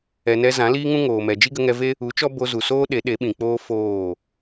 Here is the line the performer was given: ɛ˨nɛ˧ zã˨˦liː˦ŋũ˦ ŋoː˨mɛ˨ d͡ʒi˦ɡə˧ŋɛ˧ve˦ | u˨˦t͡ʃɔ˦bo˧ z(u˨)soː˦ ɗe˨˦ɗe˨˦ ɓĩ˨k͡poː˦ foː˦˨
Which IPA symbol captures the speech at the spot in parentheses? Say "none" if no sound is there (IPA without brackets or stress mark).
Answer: u˨